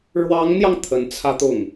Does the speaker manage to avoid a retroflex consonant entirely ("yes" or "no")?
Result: no